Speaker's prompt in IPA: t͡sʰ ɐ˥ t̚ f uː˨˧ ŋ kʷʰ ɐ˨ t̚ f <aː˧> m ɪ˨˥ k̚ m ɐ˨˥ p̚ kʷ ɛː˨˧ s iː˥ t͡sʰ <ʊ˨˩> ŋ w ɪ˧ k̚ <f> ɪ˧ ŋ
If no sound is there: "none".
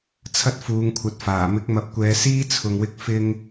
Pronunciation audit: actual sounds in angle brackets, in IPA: aː˨˩, ʊ˨, f

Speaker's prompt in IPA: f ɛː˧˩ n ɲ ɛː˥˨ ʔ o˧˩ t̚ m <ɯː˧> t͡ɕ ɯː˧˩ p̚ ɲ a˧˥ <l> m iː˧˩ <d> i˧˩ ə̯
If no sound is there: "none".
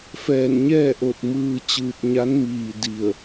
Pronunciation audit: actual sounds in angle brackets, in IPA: ɯː˧, n, d

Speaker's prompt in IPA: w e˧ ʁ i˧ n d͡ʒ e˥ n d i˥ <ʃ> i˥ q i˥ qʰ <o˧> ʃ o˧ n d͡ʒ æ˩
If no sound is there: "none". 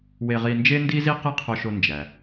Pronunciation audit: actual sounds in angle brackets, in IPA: z, o˧

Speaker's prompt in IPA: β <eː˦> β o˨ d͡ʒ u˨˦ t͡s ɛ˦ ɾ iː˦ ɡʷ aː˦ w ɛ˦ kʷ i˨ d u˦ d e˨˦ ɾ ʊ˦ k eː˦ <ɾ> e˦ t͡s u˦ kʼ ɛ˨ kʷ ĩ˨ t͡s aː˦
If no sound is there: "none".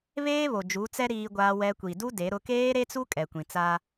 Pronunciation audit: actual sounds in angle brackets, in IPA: eː˦, ɾ

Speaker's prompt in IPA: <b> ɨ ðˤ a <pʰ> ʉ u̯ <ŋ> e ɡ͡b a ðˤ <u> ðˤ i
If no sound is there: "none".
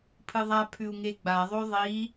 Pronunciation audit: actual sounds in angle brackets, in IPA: pʰ, pʰ, ŋ, o

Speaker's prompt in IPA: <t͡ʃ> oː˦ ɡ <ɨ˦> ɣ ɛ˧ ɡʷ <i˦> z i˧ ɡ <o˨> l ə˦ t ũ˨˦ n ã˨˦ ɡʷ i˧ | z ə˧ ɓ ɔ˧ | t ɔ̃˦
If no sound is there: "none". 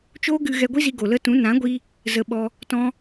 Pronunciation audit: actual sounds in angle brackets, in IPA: t͡ʃ, ɨ˧, i˦, o˨

